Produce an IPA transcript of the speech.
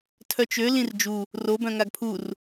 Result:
tʰ œ t͡ʃ ø l ĩ r d͡ʒ u | r o b œ̃ ŋ a ɡ pʰ u r

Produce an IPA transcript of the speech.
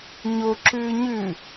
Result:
ɲ o ǁ ʉː ɲ ʉ

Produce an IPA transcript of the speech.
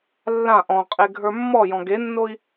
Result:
lː ã ʔ ɔ̃ qʼ e ɡʱ ə˞ mː ɔ j ɔ̃ ɡ e nː o i̯

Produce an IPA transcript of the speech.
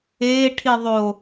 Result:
eː ʈʰ i ðˤ o

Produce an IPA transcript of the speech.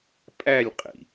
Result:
pʼ æ lʲ qʼ ḭ

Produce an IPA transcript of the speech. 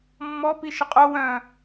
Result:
mː ɔ p i ʃ ə qʼ o w œ̃

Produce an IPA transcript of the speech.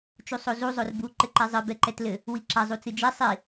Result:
t͡ʃ u sˤ o z u zˤ o r b u ǃ ɘ ǃ ɛ zˤ ɨ b ɛ ǃ ɛ t l ɘ | w i ǁ ɐ zˤ u t͡s ɨ d͡ʒ ɛ sˤ i

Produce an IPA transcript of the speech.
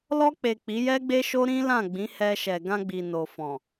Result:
l ɔ˧ k͡p e˨ k͡p i˨˦ j ɛ˦ ɡ͡b e˦ ʃ o˦ ɾ ĩ˦ l ã˦˨ ɡ͡b ĩ˨˦ h ɛ˧ ʃ ɛ˨ ɡ ã˧ ɡ͡b i˨ n o˨ f ɔ̃˨

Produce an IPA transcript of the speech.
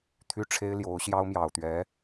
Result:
t̪ʰ y˥ ʈ͡ʂʰ e˥ ɪ̯ l j o˧˥ ʊ̯ ɕ j ɑ˥ ʊ̯ m j ɑ˨˩ ʊ̯ t̪ ɥ ɛ˧˥

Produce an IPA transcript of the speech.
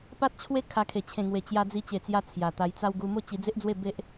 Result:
p a˦ t̚ t͡ɕʰ w e˦ kʰ a˧ kʰ e˨˩ t͡ɕʰ ẽ˨˩ ŋ w e˨˩ t͡ɕ j a˧ d͡z i˧ t͡ɕ e˨˩ t͡s j a˧ t͡sʰ j a˨˩ t̪ a˧ j t͡s a˦ w ɡ u˧ m o˦ t͡ɕ i˧ d͡z e˦ ʔ d͡z w e˥˧ b e˦ ʔ

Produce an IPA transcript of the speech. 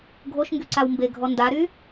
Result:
ɡʱ o ʃ ŋ ɡ y ǀ a w m b e ɡʱ ɔ n d a ɾ y

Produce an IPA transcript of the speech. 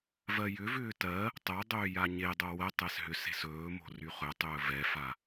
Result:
v ɜ j ʏ v ʏː t ɜ | tˤ o dˤ ʏː j a ɲ e dˤ o w ə tˤ ɛ s ɦ ʏ s e̤ s ɵː m o̤ r y χ ɵ tˤ ɵː v ɛ f a

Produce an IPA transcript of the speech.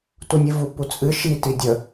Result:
t u nʲ ɨ v u p u t͡sʼ ɨ ʃ i t i dʲ ə

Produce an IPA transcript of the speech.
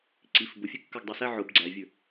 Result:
ǀ i f b ʊ fʲ ɛ kː ə˞ ɡ dˤ ɛ s æ ʕ ʊ b ɡ͡ǀ æ vʲ ə˞

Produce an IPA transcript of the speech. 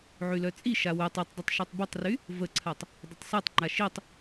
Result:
ʕ y l œ t͡sʼ i ʃ a w ø tˤ y tˤ dˤ ʏ tˤ ʃ i tˤ b ə tˤ r y | v ə ǀʰ a tˤ | dˤ ʊ tˤ s a tˤ ŋ͡ǃ a ʃ i tˤ

